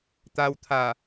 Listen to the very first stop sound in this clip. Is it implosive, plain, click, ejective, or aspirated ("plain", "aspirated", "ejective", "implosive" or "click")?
plain